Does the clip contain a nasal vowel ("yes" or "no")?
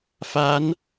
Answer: no